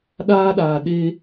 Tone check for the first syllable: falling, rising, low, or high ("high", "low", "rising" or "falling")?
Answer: high